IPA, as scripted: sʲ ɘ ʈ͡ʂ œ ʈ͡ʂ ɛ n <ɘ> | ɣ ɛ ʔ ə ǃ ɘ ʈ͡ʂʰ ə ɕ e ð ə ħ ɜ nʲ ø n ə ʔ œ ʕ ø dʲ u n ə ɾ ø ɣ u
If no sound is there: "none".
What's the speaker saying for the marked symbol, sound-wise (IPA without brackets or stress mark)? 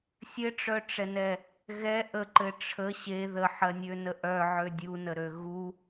ɛ